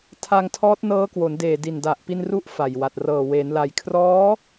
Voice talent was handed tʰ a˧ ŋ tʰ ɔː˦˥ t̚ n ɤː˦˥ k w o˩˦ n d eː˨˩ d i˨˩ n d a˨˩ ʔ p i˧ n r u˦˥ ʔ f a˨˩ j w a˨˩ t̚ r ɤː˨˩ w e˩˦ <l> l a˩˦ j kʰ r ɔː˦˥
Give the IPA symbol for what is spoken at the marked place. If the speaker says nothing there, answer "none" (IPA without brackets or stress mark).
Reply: n